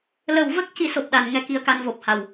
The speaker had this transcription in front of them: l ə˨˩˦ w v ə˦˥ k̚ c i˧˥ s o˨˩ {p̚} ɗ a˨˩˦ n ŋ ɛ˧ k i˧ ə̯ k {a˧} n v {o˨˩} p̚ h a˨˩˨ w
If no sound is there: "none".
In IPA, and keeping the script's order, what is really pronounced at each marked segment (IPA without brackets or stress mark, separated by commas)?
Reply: p̚, a˧, o˨˩